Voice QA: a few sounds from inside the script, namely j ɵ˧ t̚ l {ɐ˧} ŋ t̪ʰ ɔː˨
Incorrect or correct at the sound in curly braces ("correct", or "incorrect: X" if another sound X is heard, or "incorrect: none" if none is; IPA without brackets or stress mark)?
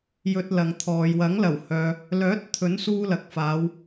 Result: incorrect: ɐ˨